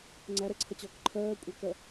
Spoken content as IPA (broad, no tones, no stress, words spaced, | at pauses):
ŋ͡ǀæɾɛǀʰʌt͡ɕɔːk ǃʰɜːkʷʼækɜ